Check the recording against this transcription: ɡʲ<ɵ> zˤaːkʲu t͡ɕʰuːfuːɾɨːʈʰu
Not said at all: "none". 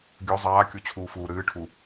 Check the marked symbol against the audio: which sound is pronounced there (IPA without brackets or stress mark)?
ɵ